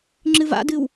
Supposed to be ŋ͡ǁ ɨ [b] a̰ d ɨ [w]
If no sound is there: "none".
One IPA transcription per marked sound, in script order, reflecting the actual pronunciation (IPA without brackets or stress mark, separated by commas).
v, w